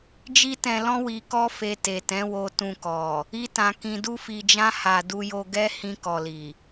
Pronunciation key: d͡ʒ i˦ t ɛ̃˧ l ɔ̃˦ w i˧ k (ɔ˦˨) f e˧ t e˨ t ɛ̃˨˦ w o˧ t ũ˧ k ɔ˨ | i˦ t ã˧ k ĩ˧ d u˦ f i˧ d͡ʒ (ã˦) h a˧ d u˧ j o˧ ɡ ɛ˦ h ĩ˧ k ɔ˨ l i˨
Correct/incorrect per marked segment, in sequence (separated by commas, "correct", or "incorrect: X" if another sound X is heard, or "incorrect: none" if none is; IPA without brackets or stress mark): incorrect: ɔ˦, correct